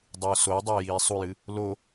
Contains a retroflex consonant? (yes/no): no